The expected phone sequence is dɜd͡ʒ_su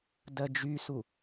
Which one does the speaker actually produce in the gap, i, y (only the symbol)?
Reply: y